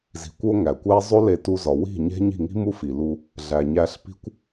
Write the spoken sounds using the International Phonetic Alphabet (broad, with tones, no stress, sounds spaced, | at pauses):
z i̤˨ kʷ o˧ ŋ æ˨ kʷ æ˦ zˤ o˦ l e˧ t u˧ z ɒ˨ w i̤˦˨ ɲ e̤˦ ɲ i̤˦˨ ŋ i̤˦ m u˦ f i˨ l u˧ | ɮ æ˨ ɲ æ˧ ɬ p i̤˦ kʷ